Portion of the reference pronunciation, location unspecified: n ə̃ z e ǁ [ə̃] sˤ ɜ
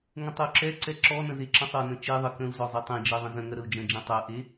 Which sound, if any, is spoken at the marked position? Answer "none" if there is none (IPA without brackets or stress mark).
ə̃